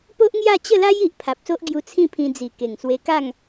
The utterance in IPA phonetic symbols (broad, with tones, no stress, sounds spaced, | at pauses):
p o˦ ʔ ŋ j a˥˧ t͡ɕ ə˥˧ l a˦ j i˨ ʔ pʰ a˨ p̚ s o˦ ʔ ɡ j u˧ t͡sʰ ĩ˥˧ pʰ ĩ˧ d͡z i˨˩ k e˨˩ ŋ s w e˧ k a˥˧ ŋ